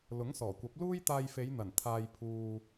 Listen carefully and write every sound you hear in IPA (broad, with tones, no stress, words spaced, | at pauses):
lʊ˨˥ŋsɔː˨˩kʷɐ˨˥p̚ luː˥jt̪aː˧jfe˨˧jn̪ɐ˨˩n t̪ʰaː˧jpʰuː˧